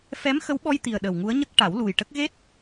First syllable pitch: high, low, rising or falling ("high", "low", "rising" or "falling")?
rising